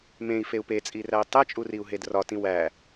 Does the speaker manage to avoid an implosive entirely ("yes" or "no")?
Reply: yes